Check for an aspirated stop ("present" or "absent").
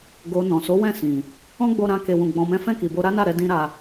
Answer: absent